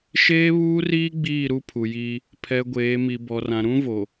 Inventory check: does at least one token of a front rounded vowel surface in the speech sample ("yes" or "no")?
no